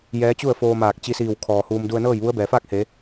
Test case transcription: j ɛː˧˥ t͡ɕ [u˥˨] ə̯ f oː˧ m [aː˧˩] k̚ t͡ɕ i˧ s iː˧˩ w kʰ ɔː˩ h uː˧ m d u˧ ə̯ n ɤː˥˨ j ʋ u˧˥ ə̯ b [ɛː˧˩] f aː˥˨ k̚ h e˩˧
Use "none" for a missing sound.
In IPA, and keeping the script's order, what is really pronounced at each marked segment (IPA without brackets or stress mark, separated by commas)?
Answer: u˥˨, aː˧˩, ɛː˩